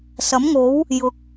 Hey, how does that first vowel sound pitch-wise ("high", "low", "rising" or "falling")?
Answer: rising